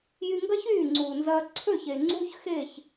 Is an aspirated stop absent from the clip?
no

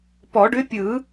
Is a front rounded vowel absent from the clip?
no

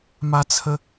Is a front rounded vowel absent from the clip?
yes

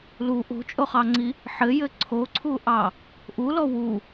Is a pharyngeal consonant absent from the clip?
no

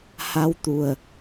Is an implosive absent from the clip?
yes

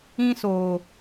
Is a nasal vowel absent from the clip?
no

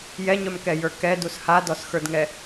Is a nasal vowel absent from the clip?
yes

